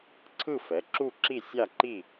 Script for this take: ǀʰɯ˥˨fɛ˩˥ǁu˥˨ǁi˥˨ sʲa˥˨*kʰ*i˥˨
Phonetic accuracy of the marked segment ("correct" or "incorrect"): incorrect